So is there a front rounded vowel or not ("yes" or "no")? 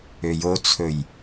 yes